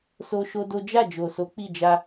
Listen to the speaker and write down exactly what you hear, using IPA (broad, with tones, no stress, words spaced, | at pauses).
so˦ʃo˦do˦ d͡ʒa˦˨d͡ʒo˨so˨˦ k͡pi˦˨d͡ʒa˧